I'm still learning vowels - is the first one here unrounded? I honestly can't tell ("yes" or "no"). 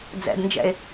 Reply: yes